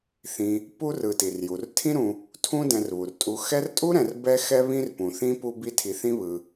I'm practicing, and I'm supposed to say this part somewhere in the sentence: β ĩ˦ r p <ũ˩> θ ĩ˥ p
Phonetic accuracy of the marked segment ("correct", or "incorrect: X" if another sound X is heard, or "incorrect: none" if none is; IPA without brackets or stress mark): correct